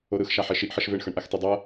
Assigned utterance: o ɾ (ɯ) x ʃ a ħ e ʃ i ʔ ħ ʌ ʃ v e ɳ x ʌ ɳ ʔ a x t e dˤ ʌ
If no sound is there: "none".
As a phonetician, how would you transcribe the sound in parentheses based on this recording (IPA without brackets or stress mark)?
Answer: ɯ